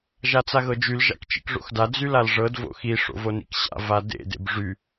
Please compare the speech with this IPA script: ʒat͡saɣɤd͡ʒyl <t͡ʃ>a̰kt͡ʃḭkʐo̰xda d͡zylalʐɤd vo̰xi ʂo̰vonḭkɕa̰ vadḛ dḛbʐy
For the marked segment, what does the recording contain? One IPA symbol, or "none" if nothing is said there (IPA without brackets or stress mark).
ʒ